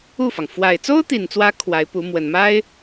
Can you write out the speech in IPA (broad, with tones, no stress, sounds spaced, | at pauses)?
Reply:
u˥˩ f ɑ˩ ŋ f w a˨˩ ɪ̯ t͡s o˥ ʊ̯ t̪ i˨˩ n t͡s w ä˧˥ kʰ w a˧˥ ɪ̯ p u˧˥ m w ə˨˩ n m a˥ ɪ̯